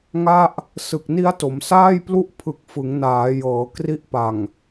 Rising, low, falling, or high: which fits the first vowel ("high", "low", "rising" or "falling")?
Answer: falling